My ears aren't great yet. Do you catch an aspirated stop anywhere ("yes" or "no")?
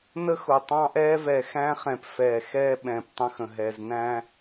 no